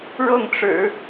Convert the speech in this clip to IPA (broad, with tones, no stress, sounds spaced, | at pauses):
ɻ ɤ˥˩ ŋ ʈ͡ʂ ɻ̩˨˩˦